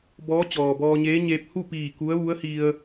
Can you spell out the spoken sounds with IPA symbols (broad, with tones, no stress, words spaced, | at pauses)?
bɔː˧˥ t͡ɕɔː˩bɔː˧ɲeː˧˥ɲeː˧p̚ hu˥˨piː˧˩ ku˧˥ə̯ʋu˧˥ə̯hi˧ə̯